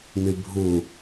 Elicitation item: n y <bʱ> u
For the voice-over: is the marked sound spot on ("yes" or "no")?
yes